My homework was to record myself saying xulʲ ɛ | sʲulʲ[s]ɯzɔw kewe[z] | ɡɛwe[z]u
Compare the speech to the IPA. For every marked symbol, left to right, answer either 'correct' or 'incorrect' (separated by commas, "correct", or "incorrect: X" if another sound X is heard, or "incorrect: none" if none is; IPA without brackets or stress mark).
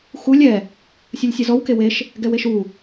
incorrect: sʲ, incorrect: ʃ, incorrect: ʃ